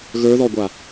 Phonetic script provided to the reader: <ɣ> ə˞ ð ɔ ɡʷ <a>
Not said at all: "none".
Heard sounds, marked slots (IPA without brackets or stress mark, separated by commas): ɣ, a